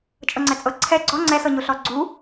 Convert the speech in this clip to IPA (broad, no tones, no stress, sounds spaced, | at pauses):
t͡ʃʼ ɤ ŋ͡ǀ ɛ t͡sʼ ɤ ǀʰ ɛ ɡ͡ǀ ɔ ŋ͡ǀ ɛ s ɤ ɲ o ɬ ɔ ɡ͡ǀ u